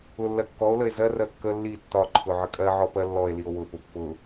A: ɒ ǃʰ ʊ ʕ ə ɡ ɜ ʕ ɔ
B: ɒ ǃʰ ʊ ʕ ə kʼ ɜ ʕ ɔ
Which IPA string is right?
B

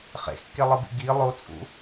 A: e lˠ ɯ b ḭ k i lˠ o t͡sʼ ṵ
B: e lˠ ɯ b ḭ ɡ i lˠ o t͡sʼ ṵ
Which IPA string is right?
B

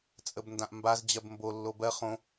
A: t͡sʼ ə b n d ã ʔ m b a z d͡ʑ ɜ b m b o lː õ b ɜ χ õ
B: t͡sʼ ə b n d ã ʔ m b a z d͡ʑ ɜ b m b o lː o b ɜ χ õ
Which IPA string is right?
B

